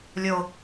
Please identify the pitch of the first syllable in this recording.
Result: low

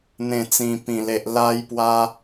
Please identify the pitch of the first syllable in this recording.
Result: low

